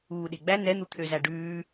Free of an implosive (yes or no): no